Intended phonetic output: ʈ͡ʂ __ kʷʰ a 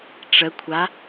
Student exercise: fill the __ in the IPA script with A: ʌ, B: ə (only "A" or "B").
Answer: B